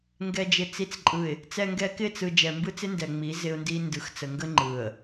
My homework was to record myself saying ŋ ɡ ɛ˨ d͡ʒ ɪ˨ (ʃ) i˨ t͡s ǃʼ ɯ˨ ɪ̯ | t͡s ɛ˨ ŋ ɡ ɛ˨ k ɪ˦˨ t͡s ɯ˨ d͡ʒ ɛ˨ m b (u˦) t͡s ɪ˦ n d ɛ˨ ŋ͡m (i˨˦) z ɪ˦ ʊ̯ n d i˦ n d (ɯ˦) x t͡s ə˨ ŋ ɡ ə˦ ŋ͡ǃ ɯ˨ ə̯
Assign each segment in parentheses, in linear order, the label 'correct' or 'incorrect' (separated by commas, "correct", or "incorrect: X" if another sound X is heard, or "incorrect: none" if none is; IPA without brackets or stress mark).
incorrect: t͡s, incorrect: ɯ˦, correct, incorrect: ɯ˨